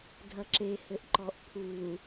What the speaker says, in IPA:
dʱɐǁe hɘʔǃɔʔpʰuː

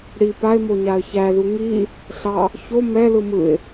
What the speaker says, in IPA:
ɽi paɪ̯mo ɲaə̯çæðu ŋi | ɬɑ | ço mɛlɯ mɯɪ̯

